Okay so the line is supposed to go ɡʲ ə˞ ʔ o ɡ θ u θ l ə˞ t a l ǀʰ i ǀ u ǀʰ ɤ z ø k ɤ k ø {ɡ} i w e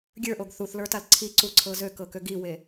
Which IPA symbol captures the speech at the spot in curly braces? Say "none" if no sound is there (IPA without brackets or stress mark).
ɡ